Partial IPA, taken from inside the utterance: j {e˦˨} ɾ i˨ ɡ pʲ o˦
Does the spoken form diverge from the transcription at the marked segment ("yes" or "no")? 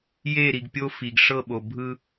no